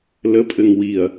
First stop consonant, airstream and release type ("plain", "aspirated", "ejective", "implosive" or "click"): ejective